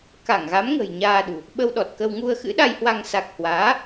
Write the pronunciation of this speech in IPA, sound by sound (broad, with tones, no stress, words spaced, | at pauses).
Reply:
ka˧˩ŋɣa˨˦mŋə̤˨˩j ɲaː˧ɗṳ˨˩ | ɓə˧wɗɔ˨˩t̚kə˧w ŋu˧ə̯xɨ̰˧˥ɗa˧jhwa˧ŋ sa˨˩k̚hwaː˨˦